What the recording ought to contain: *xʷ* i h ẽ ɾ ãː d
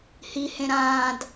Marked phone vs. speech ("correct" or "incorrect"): incorrect